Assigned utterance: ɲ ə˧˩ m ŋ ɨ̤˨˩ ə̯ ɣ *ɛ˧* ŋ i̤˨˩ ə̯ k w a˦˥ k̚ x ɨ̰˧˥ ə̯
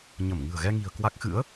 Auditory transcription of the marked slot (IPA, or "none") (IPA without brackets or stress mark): ɛ˧